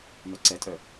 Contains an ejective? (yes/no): yes